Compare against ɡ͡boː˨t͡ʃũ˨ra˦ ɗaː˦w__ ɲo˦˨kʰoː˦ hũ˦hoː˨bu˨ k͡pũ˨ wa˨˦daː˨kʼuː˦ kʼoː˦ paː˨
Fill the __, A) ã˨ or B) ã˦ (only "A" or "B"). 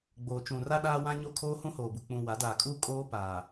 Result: B